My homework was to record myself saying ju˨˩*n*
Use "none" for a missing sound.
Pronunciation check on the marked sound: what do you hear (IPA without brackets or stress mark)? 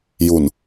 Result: n